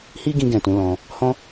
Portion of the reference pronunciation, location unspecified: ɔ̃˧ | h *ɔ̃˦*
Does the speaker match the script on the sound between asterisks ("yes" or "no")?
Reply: yes